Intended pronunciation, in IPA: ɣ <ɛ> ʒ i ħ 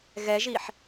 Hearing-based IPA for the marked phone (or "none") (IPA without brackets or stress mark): ɛ